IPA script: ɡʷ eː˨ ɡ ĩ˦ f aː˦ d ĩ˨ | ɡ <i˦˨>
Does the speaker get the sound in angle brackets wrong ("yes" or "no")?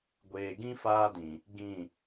yes